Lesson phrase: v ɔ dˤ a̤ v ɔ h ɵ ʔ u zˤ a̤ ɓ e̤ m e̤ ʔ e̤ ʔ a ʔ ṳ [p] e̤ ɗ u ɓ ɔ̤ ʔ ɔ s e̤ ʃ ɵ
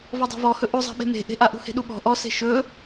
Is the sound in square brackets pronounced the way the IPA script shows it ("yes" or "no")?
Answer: no